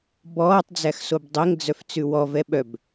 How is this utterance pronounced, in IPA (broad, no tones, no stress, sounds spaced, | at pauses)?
b ɔː tˤ d͡z æ x s o b dˤ ɛ ŋ d͡z œ f t͡s ʉ w ɔ v ɛ ɓ œ b